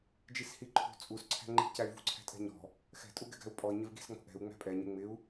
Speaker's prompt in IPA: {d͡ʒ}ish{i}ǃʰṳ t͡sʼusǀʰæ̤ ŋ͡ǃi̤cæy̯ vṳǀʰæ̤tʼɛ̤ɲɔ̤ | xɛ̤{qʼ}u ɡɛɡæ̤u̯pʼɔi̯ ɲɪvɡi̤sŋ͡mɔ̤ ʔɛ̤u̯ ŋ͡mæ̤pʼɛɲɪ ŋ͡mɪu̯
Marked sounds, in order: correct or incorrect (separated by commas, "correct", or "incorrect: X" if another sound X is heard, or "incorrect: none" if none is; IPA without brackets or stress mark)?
correct, correct, incorrect: tʼ